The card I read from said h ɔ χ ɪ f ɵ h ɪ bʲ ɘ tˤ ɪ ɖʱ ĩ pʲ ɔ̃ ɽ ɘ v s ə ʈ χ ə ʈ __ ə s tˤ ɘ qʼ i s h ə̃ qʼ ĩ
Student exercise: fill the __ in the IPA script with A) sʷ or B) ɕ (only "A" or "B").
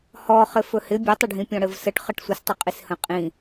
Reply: A